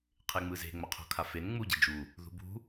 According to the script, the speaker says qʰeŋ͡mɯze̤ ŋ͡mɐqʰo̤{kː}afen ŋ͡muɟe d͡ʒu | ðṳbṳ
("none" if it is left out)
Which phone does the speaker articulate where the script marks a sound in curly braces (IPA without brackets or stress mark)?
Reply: kʰ